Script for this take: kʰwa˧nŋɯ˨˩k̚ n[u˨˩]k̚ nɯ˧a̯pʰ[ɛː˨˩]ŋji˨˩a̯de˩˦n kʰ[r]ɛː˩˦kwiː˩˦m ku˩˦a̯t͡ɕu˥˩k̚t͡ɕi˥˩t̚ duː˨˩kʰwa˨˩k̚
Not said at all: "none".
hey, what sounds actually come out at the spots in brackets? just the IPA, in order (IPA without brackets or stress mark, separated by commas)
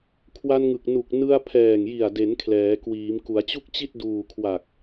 u˨˩, ɛː˨˩, l